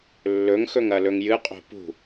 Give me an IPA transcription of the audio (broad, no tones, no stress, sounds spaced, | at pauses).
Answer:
lː ɵ ŋ x ɵ ŋ ɐ l ɵ ŋ j ɨ qʼ o̤ p ṳ